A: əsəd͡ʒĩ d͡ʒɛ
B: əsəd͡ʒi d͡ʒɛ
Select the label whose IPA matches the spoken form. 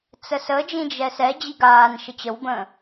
A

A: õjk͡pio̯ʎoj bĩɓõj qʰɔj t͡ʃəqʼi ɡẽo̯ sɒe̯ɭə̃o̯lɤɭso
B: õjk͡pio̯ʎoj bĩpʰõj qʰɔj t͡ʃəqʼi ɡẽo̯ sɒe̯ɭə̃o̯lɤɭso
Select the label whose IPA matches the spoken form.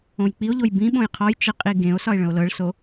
A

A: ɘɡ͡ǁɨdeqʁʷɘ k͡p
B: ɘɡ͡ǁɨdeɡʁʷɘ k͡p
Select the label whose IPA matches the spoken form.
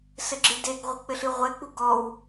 B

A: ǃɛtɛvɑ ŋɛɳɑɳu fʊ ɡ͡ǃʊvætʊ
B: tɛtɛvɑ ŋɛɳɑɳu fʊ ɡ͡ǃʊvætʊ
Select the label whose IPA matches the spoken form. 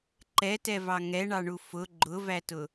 A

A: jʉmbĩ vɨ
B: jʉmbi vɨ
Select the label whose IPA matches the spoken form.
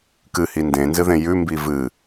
B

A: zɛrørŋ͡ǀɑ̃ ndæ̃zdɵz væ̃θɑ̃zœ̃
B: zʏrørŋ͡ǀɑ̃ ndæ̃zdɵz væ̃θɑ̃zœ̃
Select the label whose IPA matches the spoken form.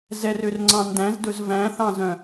A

